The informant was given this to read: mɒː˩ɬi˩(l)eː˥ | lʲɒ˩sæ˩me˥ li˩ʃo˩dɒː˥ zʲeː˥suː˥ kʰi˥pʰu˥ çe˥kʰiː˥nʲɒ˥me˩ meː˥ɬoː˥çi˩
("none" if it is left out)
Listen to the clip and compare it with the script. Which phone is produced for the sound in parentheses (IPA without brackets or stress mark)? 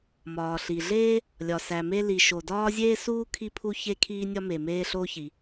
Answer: ɮ